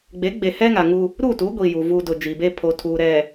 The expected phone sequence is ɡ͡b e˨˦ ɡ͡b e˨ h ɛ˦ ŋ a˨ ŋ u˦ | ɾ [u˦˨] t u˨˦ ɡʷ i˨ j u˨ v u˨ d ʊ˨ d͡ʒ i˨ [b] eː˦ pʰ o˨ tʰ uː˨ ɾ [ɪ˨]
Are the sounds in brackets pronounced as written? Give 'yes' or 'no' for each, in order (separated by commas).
yes, yes, no